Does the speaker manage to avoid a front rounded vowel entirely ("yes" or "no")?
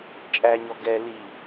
yes